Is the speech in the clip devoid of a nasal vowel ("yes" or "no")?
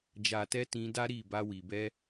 no